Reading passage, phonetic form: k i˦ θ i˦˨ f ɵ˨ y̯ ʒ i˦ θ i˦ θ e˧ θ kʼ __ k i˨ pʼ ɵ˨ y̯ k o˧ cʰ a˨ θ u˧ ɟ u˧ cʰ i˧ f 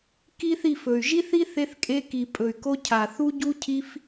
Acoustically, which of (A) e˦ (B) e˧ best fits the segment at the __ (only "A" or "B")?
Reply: B